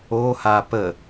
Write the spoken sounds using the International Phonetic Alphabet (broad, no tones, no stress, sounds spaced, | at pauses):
o h a p ə